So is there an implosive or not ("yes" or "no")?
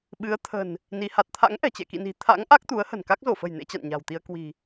yes